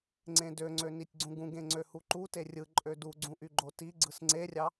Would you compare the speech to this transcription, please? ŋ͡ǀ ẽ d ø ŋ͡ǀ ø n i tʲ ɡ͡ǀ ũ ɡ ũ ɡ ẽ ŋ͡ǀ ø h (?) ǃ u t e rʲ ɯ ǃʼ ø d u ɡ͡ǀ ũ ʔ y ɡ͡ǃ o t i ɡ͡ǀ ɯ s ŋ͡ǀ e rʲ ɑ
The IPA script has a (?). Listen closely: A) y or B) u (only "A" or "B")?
B